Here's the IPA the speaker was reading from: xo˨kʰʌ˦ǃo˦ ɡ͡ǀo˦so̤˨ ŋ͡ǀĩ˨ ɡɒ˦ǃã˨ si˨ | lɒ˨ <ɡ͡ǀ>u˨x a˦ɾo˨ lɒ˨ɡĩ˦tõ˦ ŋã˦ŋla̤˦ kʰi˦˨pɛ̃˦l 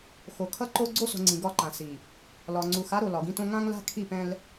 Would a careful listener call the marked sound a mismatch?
yes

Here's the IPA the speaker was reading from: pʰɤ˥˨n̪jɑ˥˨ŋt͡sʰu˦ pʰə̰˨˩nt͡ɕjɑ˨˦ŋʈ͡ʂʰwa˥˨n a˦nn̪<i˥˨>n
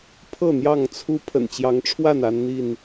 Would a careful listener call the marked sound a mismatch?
no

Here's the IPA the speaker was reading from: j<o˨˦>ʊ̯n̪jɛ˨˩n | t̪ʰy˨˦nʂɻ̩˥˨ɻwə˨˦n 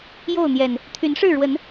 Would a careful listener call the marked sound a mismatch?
yes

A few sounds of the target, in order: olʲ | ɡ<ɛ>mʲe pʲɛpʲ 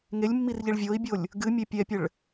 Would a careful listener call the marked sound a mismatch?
yes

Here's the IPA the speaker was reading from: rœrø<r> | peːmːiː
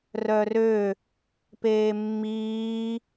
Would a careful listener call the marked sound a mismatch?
yes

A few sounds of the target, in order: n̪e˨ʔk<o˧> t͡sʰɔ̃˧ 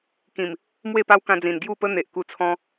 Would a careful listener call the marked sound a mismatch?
yes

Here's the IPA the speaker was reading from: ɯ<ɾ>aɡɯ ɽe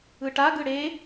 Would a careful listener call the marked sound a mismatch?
yes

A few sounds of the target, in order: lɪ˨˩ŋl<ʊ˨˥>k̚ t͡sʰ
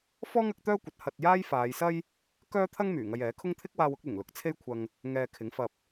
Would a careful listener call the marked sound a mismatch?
no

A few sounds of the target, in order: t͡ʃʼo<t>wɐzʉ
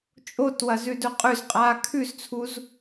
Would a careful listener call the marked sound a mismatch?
no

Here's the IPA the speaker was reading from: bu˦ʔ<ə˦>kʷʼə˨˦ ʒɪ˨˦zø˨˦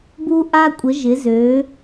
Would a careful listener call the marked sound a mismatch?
yes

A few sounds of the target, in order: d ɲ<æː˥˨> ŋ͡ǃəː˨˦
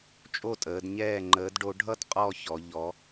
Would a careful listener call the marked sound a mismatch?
yes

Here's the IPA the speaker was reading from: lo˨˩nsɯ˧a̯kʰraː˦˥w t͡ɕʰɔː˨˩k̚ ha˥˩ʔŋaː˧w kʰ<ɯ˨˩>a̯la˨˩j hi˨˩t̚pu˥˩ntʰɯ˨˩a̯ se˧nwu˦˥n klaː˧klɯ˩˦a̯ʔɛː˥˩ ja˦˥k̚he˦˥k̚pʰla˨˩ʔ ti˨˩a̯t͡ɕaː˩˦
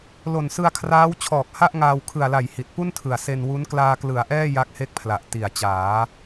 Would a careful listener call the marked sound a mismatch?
no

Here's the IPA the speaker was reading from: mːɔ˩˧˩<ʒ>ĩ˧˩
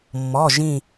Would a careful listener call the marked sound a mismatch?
no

